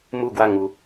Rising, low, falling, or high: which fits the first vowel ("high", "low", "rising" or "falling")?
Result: falling